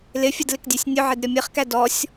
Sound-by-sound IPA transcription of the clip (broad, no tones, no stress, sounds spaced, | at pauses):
l ɪ fʲ ə d l ɪ k dʲ æ sʲ nʲ ʊ ʕ ɪ d ɾʲ ɔ mʲ ɜ χ k æ d ɔ sʲ